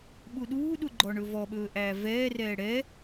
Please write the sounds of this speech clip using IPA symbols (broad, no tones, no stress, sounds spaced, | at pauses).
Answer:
ɓ u ɗ uː ɗ u ɡ͡ǃ ɔ ɳ ɵ v ɔ ɓ ɵː ʔ æː v ɛː r ɛː ɽ ɛ